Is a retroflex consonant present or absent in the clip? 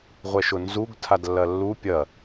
absent